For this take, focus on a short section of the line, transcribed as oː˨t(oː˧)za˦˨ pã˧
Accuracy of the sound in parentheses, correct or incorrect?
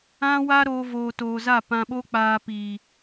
incorrect